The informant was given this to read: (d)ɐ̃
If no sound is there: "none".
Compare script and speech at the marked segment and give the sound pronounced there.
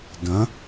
d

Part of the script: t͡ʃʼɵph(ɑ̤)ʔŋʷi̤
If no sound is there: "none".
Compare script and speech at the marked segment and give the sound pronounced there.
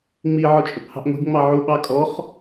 ɑ̤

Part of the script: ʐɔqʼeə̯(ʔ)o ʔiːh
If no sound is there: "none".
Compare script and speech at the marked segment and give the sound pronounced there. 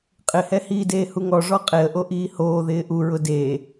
ʔ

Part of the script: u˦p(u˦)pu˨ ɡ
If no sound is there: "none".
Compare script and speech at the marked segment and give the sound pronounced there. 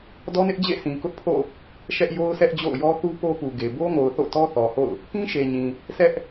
o˦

